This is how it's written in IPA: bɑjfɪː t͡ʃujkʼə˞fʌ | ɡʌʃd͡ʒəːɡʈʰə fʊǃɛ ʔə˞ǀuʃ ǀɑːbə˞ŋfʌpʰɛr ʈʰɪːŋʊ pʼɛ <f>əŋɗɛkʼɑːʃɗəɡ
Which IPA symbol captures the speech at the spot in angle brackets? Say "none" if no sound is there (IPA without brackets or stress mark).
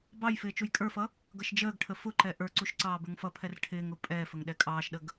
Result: f